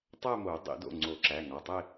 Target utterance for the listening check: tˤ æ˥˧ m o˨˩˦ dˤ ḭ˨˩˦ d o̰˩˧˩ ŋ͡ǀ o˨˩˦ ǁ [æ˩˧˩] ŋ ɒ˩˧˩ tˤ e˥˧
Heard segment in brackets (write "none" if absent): æ˩˧˩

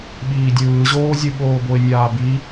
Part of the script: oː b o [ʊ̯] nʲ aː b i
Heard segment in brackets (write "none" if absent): ɪ̯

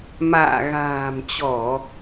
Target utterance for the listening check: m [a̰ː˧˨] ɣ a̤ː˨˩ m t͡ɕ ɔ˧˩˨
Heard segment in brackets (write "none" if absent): a̰ː˧˨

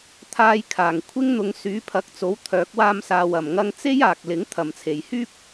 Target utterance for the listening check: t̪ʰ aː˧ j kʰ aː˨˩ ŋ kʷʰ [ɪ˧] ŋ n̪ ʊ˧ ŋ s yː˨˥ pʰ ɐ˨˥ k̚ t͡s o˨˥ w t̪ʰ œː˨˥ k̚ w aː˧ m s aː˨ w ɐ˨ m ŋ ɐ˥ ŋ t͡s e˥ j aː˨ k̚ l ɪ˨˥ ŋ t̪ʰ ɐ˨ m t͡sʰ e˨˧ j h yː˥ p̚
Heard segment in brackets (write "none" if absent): ɪ˥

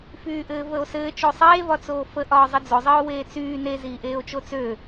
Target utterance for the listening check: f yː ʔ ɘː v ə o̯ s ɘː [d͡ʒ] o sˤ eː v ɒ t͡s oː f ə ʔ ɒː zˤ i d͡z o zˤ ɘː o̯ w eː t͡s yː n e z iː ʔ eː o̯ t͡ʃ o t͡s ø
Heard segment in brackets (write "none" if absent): t͡ʃ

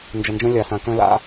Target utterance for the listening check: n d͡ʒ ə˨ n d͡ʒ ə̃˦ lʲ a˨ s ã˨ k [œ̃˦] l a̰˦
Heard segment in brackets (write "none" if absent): œ̃˦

